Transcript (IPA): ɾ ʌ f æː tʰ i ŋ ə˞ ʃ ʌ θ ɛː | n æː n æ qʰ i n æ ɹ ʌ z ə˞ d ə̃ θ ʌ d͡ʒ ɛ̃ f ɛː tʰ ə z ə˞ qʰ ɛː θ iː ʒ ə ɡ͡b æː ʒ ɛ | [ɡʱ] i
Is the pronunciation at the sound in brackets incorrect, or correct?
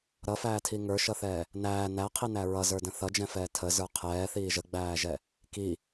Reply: incorrect